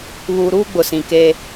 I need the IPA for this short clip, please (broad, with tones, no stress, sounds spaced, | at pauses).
β uː˨ ɾ uː˦ ɡ͡b ʊ˨ s ĩ˨ k e˦